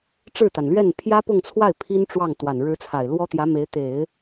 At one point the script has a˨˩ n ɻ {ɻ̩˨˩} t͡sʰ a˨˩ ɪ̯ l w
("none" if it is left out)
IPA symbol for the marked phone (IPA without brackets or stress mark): ɻ̩˧˥